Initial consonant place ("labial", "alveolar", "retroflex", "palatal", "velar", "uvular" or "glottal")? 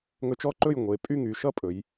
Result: velar